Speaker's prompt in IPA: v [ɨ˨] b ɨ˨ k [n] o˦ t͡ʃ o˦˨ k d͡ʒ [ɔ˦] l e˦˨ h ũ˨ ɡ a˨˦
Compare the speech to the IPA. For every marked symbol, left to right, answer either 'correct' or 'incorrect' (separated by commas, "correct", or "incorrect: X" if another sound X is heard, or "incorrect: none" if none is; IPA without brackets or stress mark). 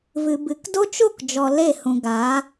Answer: correct, incorrect: d, incorrect: ɔ˨